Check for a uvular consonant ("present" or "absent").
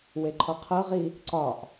present